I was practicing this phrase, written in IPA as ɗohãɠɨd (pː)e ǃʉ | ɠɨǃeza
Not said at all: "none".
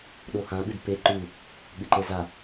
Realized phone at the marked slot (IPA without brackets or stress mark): p